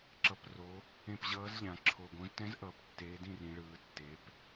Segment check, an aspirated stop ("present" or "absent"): present